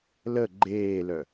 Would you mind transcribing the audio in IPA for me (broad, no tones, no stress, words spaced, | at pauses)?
lə ɡ͡ǃeːlœ